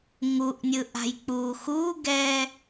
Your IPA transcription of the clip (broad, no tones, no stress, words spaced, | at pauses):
ŋuʔnʲɯʔa̤j k͡puːxuːɡɛː